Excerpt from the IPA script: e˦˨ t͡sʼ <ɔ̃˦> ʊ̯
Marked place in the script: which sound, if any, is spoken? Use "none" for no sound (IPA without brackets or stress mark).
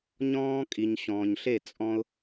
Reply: ɔ̃˦